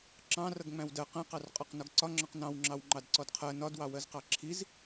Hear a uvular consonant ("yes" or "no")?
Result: yes